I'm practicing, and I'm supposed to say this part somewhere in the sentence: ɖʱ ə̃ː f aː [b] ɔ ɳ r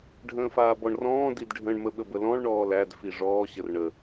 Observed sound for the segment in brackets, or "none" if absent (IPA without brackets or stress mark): b